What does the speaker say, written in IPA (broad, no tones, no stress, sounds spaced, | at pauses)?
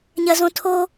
ɲ ɐ z õ tʰ o